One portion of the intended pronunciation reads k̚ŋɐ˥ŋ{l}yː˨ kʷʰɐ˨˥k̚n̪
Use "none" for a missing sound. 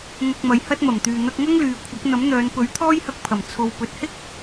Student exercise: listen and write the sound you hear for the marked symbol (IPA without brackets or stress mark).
l